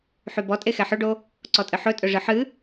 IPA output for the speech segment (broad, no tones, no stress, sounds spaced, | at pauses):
ħ y b ɔ tʼ e x ɛ ħ ɵ ɖ o | ǀ ɔ tʼ ɨ ħ ɵ tʼ ɵ ʐ ɨ ħ ɨ